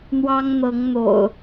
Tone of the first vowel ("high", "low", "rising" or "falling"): high